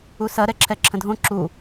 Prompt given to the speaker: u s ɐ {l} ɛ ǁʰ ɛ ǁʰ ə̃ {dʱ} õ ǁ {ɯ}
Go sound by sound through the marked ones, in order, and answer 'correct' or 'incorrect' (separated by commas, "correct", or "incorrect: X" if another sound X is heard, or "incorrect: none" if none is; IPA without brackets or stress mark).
incorrect: ɾ, correct, incorrect: u